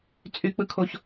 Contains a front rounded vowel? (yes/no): yes